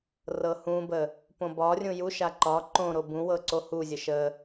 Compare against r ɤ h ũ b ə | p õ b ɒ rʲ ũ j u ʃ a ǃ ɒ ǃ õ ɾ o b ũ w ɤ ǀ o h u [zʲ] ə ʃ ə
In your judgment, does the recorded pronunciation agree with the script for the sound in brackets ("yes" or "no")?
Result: yes